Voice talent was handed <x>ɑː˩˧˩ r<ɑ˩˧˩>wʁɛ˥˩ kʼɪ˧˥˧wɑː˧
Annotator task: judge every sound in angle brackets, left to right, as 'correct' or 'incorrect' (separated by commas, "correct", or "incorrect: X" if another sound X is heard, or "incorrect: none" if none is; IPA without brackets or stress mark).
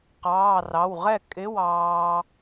incorrect: q, correct